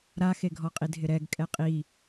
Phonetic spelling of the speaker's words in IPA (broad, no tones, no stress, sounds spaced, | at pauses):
ɾ a x e ɡʱ ɔ qʼ i dʱ ɪ ɾ ɛ ɡ kʼ ɛ qʼ i